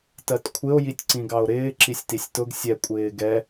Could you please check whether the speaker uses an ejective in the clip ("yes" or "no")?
yes